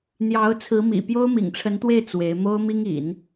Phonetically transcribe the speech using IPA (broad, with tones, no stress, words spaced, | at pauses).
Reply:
n̪jɑ˧˥ʊ̯t͡sʰɹ̩˧˥mḭ˨˩ pjo˥ʊ̯mḭ˨˩ŋʈ͡ʂʰə˧˥nt̪we˥˩ɪ̯ t͡swe˧˥ɪ̯ mo˥ʊ̯mi˥ŋ ḭ˨˩˦n